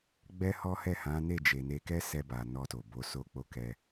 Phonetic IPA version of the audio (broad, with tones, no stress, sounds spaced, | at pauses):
ɡ͡b ɛ˦ h ɔ˦ h ɛ˦˨ h ã˨˦ n e˦˨ d͡ʒ e˨ n e˧ k ɛ˦ s ɛ˧ b a˨ n ɔ˧ t o˨ b o˨˦ s o˧ k͡p o˧ k ɛ˧